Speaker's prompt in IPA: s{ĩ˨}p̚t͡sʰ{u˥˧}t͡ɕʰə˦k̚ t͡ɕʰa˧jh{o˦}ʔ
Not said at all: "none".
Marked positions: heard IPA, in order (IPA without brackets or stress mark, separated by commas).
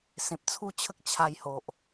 ẽ˨, u˥˧, o˨